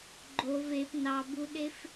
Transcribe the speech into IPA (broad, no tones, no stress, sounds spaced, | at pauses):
ɡ͡ǃ o v e p n ɑ b u ɗ e f